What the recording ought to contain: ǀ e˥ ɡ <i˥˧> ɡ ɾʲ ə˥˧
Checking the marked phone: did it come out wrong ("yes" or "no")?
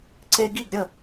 no